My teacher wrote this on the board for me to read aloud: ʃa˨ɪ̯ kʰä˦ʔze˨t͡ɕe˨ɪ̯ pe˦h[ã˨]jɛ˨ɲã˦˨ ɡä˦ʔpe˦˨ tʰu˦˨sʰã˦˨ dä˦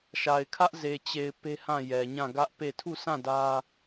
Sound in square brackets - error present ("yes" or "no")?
yes